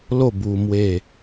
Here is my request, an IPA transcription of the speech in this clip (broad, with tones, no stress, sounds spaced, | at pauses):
l o˥˧ b u˧ m w e˥˧